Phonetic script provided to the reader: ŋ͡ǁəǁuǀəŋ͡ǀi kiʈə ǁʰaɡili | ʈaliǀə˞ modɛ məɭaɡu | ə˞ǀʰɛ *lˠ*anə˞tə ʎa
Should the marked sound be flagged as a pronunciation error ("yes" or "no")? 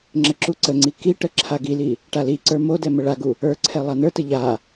no